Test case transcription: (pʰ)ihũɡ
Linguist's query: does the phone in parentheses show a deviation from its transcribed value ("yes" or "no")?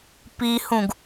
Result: yes